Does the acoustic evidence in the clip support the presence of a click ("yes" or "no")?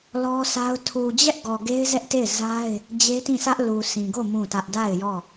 no